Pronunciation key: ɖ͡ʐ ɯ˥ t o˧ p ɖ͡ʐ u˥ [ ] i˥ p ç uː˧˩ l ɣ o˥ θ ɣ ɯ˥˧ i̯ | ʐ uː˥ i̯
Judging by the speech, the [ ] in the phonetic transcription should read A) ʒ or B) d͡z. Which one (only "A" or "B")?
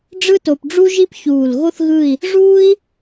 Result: A